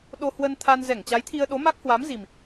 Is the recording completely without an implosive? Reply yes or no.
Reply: no